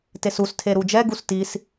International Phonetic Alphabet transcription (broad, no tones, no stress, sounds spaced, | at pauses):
t e s u s tʰ e ɾ u d͡ʒ ɛ ɡ u s t i s